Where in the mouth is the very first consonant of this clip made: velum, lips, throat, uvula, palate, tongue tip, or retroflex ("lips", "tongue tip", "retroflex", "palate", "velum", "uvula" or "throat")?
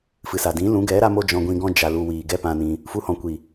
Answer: lips